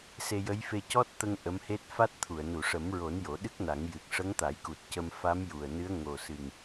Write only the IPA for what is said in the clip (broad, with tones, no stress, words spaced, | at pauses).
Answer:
se˧jə˧˥jfe˧ cɔ˦˥t̚t̪ə˧ŋ ʔə˧˥mhe˦˥t̚ fa˦˥t̚t̪ʰu˨˩˨ə̯ nu˨˩˨ʂə˨˩˦mɹo˨˩˦n jo˨˩˦ɗɨ˦˥k̚na˨˩˦ŋjɨ˨˩k̚ ʂə˧˥ŋt̪a˨˩˦jku˨˩t̚ cə˧mfa˧˥mju˨˩ə̯nɨ˧˥ə̯ ŋo˨˩sɨ˨˩ŋ